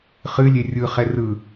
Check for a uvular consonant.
present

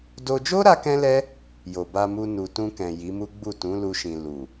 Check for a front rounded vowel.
absent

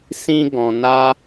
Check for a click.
absent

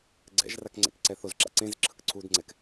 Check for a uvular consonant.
absent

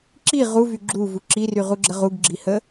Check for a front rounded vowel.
present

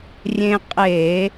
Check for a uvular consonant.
present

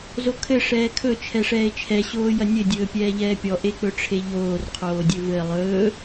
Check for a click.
absent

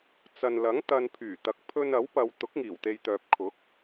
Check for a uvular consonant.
absent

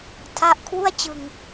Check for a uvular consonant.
absent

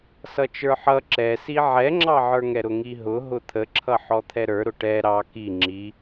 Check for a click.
present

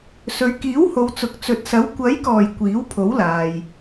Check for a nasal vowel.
absent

